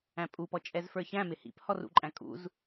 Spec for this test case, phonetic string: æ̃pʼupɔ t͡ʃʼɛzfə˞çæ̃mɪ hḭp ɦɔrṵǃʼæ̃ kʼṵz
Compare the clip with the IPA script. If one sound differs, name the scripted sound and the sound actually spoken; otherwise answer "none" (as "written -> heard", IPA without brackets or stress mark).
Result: ɦ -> h